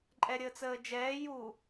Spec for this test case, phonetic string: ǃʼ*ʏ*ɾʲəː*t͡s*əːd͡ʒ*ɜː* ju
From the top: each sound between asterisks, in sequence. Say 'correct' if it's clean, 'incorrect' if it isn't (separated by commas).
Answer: incorrect, correct, incorrect